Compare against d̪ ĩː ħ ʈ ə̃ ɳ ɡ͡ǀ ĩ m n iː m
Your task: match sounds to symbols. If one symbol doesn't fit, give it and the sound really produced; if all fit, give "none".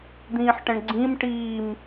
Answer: n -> ʈ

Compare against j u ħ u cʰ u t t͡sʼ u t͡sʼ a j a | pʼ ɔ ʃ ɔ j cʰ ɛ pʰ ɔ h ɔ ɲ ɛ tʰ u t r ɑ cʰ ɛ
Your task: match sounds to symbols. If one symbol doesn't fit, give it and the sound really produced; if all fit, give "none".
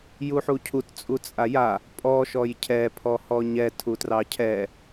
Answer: none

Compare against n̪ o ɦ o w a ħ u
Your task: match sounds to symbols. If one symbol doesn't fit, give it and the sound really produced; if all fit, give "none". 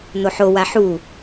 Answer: ɦ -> ħ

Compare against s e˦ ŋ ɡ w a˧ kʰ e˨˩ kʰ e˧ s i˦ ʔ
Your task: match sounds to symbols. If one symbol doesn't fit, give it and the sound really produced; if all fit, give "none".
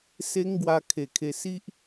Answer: none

